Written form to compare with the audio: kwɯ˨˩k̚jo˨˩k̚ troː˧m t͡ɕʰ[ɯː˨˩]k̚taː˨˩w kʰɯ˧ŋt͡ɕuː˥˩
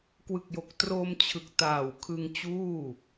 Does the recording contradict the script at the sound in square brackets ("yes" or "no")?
yes